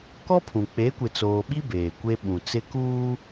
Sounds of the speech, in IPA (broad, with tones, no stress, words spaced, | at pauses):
kɔ˦pʰũ˨ k͡pe˨˦kʷɪ˨t͡soː˨ɓi˦ beː˨kʷe˦ ɓũ˨t͡sɪ˦kuː˦